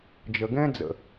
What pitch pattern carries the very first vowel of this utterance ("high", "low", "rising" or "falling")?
low